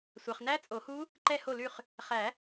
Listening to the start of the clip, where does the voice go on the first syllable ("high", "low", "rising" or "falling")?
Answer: low